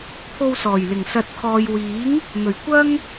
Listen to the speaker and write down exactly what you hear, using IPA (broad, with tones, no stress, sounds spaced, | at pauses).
pʰ o˧ w s ɔː˨˩ j l ɪ˨˩ ŋ s ɐ˨ t̚ kʰ ɔː˨ j w iː˨˥ ŋ | n̪ ɵ˨˩ ɥ kʷ ɐ˥ ŋ